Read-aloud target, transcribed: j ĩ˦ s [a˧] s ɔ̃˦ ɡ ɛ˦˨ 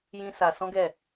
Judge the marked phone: correct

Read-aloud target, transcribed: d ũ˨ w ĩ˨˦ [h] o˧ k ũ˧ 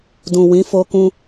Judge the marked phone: incorrect: f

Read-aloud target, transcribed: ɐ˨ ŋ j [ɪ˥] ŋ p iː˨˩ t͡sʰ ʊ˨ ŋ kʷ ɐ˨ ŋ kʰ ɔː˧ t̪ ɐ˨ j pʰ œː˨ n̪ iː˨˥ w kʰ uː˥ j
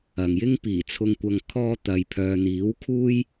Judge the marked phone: correct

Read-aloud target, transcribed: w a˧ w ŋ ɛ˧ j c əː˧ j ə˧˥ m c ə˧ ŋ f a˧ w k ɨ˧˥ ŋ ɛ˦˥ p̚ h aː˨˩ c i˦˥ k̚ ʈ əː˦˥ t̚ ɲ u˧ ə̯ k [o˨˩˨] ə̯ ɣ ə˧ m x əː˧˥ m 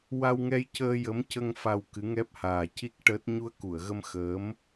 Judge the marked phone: incorrect: u˨˩˨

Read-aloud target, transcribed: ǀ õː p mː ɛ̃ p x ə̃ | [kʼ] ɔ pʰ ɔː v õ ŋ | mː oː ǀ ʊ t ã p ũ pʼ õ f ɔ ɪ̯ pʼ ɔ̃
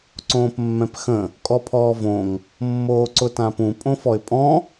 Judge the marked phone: correct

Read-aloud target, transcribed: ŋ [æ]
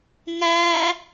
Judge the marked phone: correct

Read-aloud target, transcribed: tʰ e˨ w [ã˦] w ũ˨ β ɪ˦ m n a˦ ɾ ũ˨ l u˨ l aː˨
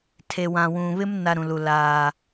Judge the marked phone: incorrect: ã˨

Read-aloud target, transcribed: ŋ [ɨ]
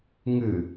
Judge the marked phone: correct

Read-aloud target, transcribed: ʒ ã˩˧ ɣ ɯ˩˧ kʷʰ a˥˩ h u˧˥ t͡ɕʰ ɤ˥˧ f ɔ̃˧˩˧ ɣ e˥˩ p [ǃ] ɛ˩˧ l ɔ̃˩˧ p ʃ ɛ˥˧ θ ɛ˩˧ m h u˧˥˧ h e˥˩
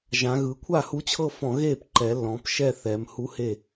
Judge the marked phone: correct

